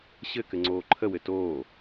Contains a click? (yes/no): yes